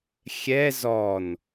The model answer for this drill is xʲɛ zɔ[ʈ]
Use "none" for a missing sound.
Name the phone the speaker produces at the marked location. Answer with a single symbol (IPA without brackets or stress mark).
n